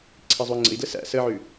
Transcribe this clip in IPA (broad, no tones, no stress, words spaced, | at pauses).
ǀʰizˤui̯ŋ͡ǀə̰i̯dləs æ̰ səʕʉ